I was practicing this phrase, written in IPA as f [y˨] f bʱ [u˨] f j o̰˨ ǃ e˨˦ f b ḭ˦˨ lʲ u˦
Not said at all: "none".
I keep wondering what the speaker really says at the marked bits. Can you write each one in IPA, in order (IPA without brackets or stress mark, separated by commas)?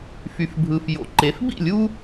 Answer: y˨, ɯ˨